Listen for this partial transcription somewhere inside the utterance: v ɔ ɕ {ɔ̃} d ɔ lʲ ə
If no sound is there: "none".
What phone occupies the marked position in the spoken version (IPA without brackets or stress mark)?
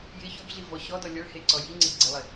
ɔ